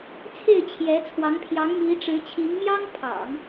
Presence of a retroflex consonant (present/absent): present